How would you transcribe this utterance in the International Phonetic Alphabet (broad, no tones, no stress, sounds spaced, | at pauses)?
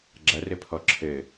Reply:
ɡ͡ǁ ɐ r ɘ pʰ ɔ ǁʰ ɘ